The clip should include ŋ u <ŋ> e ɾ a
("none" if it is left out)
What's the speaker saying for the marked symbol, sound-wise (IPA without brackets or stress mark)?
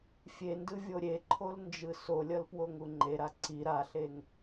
ŋ͡ǃ